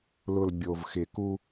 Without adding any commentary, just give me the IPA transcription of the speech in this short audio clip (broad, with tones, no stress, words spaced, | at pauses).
lʊ˨l bʲo˨vxɪ˨ku˦